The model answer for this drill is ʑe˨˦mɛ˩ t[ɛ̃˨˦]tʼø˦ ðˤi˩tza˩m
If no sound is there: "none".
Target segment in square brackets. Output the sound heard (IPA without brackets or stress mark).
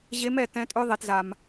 ɛ̃˨˦